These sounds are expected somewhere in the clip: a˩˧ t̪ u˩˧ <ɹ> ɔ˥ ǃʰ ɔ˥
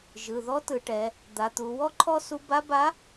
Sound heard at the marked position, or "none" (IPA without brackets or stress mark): w